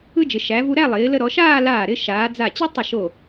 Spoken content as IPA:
ɯ˥ d͡ʒ ɪ˩˧ ʃ æ˩˧ v u˧ ɾ æ˥˧ lˠ ɪː˩˧ l ə˧ ɾ ɔ˩˧ ʃ aː˥˧ l aː˧˩ ɾ ɪ˧ ʃ aː˩˧ d͡z a˧˩ t͡ɕ i˥ tˤ ə˧˩ ʃ o˧˩

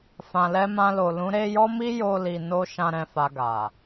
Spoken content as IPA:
f ã˨ l ɛ˧ m ã˧ l o˨ l ũ˨˦ ɾ e˧ j ɔ˦ m i˦ j o˧ l i˨ n o˧ ʃ ã˦ ɾ ɛ̃˧ f a˧ ɡ a˨

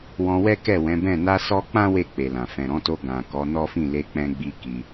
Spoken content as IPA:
w ɔ̃˧ w ɛ˦ k ɛ˦˨ w ɛ̃˨˦ b ɛ̃˦˨ n a˧ s ɔ˧ k͡p ã˦ w e˦˨ k͡p e˨ l ã˨ f ɛ̃˨ ɾ ɔ̃˨˦ t o˧ ɡ ã˨ k ɔ˨˦ n ɔ˦ f ĩ˦˨ l e˧ k͡p ɛ̃˧ ɡ͡b i˧ k i˧

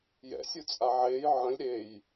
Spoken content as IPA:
j ɛ̰ sʲ u t͡sʼ a ʕ eː j ʕ ə̃ lʲ ɾ e j

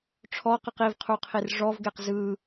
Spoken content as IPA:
ʈ͡ʂʰ ɔ q ɯ q i v qʰ u qʰ i r ʐ ɔ v ɡ e q z ɯ

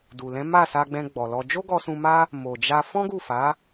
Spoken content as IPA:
d u˨ l ɛ̃˨˦ m a˦˨ s a˧ ɡ͡b ɛ̃˧ ɡ͡b ɔ˨ l ɔ˧ d͡ʒ o˦ ɡ ɔ˧ s ũ˧ m a˦ | m o˨ d͡ʒ a˧ f ɔ̃˦ ɡ u˦˨ f a˨˦

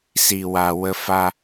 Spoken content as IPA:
s i˨ w a˨ w ə˦ f a˦

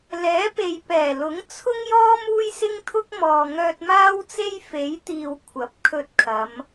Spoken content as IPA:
l ɛː˨˥ p e˨ j p ɛː˨˩ l ʊ˨˥ ŋ t͡sʰ ʊ˥ ŋ j ɔː˥ m uː˥ j s ɪ˥ ŋ t̪ʰ ʊ˥ k̚ m ɔː˨ ŋ œː˧ t̚ m aː˥ w t͡s e˥ j f e˨˥ j t̪ iː˨ w kʷʰ ɐ˨˥ p̚ kʰ ɵ˧ t̚ kʰ ɐ˨˧ m

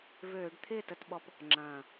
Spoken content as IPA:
v øː˧˩˧ ɖ t̪ʰ ɪː˥˩ t ə˧˩˧ t ɓ ɔ˧ p | ŋ͡ǁ ɐ̃ː˨˩

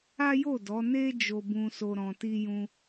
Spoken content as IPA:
a˦ j o˦˨ d ɔ˨˦ n e˦ d͡ʒ o˦ b ũ˦ s o˦ ɾ ɔ̃˧ t i˦ j ũ˦

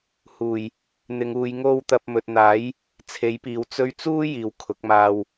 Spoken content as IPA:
h uː˨˩ j | n̪ ɪ˨˧ ŋ uː˨˧ j ŋ o˥ w t̪ ɐ˧ p̚ m ɵ˨ t̚ n̪ aː˨˥ j | t͡sʰ e˨˥ j p iː˨ w t͡s ɵ˧ ɥ t͡s uː˥ j iː˨ w kʰ ʊ˨˥ k̚ m aː˧ w

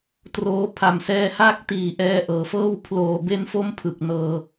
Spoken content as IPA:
t r oː˦˥ pʰ a˨˩ m s ɛː˧ h aː˥˩ k̚ t iː˨˩ ʔ ɛː˦˥ ʔ ɤː˩˦ f ɤː˥˩ w pʰ l oː˨˩ b e˧ n f o˦˥ m pʰ ɯ˨˩ k̚ n ɤː˧

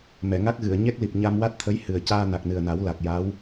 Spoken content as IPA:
m ɛ˨˩˨ ŋ a˦˥ k̚ ɣ ɨ˨˩˨ ə̯ ɲ ɛ˦˥ k̚ l i˨˩ p̚ ɲ a˧ m w a˦˥ t̚ t̪ʰ ə˧˥ j h ɨ˨˩ ə̯ c aː˧ n a˨˩ k̚ n ɨ˨˩ ə̯ n a˨˩˦ w l a˨˩ k̚ j a˧˥ w

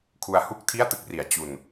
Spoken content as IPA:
kʰ u˧ a̯ h u˥˩ k̚ tʰ i˥˩ a̯ t ɯ˦˥ k̚ r i˩˦ a̯ t͡ɕ u˧ n

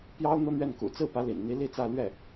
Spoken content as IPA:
p j ɑ˥ ʊ̯ n̪ ɤ˥ n̪ ɥ ɛ˥˩ n k ṵ˨˩ t͡s ɹ̩˥˩ p ä˧˥ l ḭ˨˩ n n̪ i˧˥ l i˥˧ t͡s ä˥˧ l ɥ ɛ˥˩

